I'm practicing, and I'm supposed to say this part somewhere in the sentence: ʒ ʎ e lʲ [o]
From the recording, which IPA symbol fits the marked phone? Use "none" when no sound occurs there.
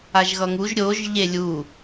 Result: u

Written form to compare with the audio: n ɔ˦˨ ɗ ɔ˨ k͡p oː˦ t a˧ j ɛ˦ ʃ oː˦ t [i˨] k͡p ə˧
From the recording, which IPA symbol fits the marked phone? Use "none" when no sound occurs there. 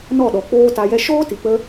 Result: i˨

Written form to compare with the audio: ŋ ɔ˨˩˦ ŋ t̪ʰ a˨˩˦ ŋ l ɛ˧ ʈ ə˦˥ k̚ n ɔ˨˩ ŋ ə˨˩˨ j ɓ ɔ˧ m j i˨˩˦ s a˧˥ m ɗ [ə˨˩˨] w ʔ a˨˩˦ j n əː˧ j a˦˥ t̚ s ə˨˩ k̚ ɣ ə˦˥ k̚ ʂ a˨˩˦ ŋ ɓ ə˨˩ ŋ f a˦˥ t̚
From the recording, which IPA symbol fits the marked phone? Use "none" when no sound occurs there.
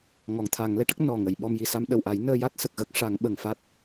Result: ə˨˩˨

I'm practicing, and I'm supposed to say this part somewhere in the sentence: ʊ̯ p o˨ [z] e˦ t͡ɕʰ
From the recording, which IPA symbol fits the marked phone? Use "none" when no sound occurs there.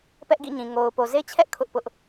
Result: z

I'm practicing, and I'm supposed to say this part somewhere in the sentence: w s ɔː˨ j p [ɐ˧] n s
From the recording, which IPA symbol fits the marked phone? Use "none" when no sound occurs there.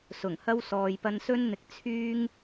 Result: ɐ˧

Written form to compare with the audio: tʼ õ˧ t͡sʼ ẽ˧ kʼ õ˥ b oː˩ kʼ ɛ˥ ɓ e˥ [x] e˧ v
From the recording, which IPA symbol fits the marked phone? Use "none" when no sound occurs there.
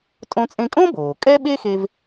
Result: x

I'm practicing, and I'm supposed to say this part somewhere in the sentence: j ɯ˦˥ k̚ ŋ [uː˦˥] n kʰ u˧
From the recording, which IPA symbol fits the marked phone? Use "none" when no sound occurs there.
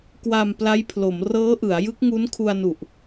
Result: u˦˥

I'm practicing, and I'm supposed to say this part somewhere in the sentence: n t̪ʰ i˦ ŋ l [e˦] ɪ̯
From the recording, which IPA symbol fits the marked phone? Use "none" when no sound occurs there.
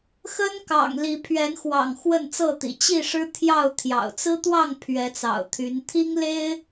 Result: e˦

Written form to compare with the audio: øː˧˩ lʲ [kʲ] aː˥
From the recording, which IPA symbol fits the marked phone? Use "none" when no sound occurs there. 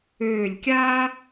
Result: kʲ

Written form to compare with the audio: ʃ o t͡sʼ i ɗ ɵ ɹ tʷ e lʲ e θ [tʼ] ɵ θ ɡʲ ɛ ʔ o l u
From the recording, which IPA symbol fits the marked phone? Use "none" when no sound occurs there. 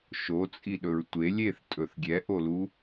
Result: tʼ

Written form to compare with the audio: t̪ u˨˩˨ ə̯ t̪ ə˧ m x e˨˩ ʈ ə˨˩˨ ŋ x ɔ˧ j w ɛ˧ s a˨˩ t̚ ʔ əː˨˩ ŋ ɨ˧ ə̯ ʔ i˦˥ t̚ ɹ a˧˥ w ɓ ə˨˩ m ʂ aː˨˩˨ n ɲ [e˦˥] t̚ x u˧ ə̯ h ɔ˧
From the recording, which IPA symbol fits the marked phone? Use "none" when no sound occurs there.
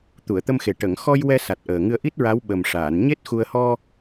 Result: e˦˥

